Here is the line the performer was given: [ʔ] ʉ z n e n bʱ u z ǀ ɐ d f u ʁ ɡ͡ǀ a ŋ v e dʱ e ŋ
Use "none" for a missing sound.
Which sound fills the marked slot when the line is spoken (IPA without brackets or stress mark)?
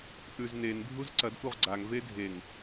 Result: ʔ